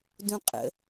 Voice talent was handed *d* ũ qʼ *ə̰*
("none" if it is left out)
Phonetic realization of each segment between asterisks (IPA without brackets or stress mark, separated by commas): d, ə̰